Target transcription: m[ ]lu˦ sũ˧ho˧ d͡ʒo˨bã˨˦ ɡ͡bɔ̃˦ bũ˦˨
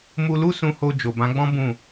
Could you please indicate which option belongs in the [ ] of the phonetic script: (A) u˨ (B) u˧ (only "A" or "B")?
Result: B